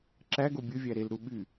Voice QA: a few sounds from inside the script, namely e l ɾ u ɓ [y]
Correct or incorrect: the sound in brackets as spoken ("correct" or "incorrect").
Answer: correct